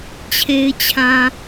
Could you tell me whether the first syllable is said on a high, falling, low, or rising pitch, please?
low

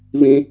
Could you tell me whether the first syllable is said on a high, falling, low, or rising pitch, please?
high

